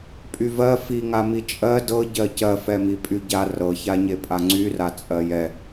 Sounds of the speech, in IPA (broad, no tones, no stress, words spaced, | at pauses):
pʼyvɜ fiŋa mit͡ʃʼɜ dɤ ɟɜcɜfɛmi pʼyɟa rɤçaɲe pʼaŋ͡ǀyra t͡sʼɜjɛ